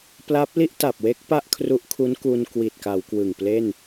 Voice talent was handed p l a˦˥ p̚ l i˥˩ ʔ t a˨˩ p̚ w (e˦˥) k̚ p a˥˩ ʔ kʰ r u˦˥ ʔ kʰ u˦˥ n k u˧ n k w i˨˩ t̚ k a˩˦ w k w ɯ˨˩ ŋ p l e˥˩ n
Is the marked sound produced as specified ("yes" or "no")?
yes